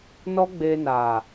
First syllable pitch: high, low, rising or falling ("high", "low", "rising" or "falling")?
high